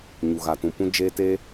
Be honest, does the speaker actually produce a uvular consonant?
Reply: no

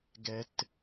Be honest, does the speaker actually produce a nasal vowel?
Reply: no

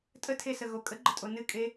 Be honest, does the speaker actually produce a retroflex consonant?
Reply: no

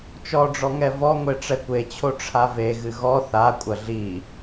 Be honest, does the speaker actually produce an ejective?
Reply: yes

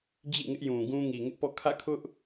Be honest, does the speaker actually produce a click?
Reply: no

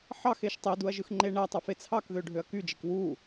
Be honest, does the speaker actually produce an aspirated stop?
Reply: yes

